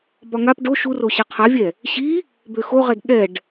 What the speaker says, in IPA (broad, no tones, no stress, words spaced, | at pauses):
bɒŋap ɖo ʃuro ɕɛqʰavʲɛ | ɕi | bøxoʁɛd ɠɛɖ